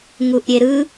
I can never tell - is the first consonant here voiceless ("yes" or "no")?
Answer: no